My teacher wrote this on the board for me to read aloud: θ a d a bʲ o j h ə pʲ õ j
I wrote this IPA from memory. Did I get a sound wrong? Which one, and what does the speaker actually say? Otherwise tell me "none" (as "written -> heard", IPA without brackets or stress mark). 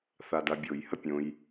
none